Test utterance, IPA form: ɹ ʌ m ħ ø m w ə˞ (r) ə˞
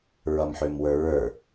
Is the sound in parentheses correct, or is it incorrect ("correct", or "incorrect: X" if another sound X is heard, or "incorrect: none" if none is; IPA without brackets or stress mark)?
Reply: incorrect: ɹ